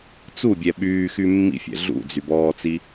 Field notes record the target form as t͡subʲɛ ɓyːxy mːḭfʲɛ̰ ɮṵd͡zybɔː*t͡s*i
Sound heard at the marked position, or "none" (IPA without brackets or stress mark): t͡s